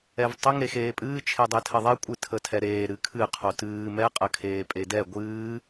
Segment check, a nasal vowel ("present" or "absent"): absent